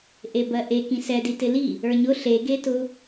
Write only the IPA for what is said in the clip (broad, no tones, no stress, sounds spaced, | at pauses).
ʔ e b ɜ ʔ e k ĩ s ɛ d i t ɪ l i | ə˞ ɲ ʊ ɬ e ɡ e t ʊ